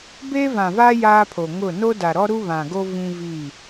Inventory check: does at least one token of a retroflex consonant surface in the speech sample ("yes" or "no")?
no